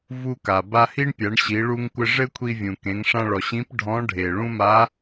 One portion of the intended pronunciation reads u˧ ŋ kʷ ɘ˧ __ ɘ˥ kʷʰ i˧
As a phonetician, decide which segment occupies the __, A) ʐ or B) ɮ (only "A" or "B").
A